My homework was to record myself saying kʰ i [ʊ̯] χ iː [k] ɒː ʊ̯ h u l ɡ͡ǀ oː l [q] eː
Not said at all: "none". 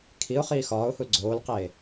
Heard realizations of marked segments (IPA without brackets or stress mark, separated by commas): ʊ̯, x, q